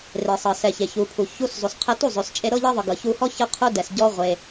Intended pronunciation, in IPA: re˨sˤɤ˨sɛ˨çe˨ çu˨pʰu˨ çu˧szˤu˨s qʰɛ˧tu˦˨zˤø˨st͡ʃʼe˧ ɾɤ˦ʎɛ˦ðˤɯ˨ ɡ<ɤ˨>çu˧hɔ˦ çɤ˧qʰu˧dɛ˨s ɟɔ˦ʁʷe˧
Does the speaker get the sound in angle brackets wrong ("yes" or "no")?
no